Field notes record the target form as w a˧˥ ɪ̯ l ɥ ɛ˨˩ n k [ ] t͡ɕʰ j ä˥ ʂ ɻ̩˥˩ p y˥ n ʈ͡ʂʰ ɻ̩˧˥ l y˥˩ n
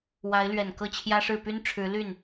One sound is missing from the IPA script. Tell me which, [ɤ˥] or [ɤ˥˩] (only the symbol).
ɤ˥˩